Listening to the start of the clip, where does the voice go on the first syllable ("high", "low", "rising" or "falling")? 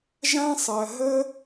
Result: high